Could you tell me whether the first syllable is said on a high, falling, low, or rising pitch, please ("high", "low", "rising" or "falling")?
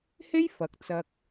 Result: high